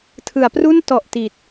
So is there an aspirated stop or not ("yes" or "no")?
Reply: yes